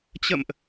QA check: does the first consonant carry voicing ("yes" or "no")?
no